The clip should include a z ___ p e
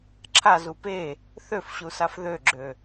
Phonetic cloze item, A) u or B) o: A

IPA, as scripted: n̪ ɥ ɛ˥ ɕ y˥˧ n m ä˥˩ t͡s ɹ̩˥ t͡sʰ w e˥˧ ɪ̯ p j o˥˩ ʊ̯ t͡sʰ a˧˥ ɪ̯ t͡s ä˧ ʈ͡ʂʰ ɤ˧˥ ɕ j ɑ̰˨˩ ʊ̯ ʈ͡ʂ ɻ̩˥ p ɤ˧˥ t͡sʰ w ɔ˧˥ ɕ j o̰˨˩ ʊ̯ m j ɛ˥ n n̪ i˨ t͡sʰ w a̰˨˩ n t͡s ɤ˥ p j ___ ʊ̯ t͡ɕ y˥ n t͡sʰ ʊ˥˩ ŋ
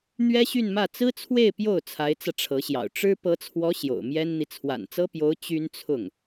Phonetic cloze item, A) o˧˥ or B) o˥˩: A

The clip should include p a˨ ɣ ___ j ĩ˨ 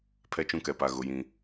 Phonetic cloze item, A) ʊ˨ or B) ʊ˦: A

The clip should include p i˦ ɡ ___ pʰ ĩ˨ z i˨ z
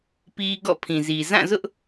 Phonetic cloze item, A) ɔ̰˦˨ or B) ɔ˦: A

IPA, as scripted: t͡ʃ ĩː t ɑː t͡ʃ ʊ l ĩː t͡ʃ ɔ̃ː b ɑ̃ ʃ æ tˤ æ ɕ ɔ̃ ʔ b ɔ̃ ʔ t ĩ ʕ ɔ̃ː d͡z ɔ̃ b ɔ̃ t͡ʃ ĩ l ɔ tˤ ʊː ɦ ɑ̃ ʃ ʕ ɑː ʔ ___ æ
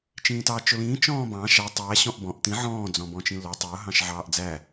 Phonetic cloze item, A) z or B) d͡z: B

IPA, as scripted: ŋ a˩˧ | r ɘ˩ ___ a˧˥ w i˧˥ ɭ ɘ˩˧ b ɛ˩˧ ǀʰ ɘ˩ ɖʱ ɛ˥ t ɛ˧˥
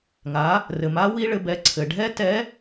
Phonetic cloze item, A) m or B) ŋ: A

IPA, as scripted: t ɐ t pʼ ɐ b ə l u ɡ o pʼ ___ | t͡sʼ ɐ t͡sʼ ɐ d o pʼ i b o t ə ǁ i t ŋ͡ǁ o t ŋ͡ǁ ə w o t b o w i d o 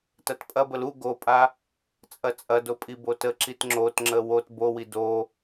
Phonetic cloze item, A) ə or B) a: B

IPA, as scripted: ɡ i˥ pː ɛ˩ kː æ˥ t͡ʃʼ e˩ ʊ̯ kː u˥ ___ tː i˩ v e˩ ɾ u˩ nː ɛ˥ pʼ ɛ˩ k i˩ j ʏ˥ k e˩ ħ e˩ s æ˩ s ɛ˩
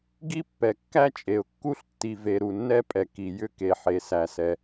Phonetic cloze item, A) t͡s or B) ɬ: B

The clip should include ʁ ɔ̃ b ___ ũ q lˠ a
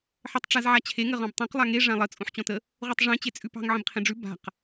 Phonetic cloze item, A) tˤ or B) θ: A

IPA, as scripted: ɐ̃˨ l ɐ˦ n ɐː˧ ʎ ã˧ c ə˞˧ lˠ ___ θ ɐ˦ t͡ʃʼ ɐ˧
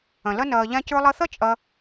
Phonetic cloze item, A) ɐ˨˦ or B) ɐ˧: B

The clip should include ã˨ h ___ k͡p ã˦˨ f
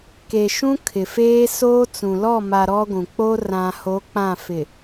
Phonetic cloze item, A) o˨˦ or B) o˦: A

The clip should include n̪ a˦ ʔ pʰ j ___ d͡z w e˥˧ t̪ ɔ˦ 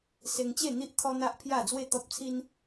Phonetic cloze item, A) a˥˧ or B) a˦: A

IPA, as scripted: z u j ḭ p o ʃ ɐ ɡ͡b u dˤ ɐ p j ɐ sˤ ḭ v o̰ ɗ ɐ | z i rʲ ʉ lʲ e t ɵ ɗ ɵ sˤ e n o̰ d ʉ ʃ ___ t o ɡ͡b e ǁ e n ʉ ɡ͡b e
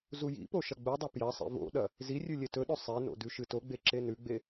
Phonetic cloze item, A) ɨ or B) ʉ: A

